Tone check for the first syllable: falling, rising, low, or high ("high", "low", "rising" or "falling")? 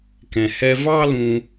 low